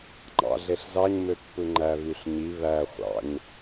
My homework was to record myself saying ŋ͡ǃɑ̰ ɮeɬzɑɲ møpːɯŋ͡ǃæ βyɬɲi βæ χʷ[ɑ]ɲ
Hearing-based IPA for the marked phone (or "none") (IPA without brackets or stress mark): ɑ̰